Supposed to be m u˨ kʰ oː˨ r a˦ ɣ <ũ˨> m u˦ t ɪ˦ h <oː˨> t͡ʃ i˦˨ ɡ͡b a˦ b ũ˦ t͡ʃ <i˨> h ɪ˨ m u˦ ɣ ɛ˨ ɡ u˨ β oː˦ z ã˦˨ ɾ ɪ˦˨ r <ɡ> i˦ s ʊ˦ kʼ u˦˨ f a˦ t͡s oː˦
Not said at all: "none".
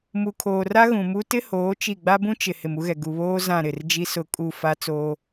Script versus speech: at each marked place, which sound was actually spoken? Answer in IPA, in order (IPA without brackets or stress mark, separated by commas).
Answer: ũ˨, oː˨˦, ɪ˨, d͡ʒ